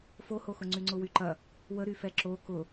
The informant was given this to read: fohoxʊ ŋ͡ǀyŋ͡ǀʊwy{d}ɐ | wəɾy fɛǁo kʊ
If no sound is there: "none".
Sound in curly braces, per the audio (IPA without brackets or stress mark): ǃ